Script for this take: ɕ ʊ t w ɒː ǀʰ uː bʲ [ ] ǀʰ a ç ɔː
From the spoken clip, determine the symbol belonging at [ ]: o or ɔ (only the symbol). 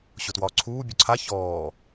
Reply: ɔ